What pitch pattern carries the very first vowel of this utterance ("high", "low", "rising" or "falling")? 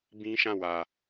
high